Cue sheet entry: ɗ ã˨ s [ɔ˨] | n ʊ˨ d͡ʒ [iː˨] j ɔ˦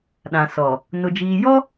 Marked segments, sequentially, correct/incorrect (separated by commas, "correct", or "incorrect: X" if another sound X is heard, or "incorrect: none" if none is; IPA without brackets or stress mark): correct, correct